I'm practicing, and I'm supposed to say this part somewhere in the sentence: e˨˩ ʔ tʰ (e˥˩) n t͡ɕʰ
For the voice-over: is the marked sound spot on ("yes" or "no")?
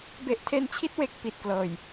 no